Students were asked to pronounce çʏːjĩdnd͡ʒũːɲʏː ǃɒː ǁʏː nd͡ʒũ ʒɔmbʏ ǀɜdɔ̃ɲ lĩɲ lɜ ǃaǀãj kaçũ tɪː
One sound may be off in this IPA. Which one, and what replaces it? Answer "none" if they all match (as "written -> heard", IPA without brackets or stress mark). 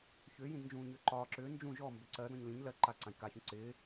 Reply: t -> ǀ